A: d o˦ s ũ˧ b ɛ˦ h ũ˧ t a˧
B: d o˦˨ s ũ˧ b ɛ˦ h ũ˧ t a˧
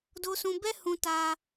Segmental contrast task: A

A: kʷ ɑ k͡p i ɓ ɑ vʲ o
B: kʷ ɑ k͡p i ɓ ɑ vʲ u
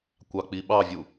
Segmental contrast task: B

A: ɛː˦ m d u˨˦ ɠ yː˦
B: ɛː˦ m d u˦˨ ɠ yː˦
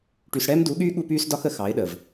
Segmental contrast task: A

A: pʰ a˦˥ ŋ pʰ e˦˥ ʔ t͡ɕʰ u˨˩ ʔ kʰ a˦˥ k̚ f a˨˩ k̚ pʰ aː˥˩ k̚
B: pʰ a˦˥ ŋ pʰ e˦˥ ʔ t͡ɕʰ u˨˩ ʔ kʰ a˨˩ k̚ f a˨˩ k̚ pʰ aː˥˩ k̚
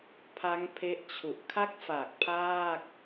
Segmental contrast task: A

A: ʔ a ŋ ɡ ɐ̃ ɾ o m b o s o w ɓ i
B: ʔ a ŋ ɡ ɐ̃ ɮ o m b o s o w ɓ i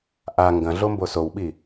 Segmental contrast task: B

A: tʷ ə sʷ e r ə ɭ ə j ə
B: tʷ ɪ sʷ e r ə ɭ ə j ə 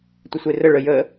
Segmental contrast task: B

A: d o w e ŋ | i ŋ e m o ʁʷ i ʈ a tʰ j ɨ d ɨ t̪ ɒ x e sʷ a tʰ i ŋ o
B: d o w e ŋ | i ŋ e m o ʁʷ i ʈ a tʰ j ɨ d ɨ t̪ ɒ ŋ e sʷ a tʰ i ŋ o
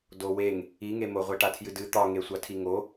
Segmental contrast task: B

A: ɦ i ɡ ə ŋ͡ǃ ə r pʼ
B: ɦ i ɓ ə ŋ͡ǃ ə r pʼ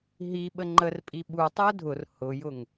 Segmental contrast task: B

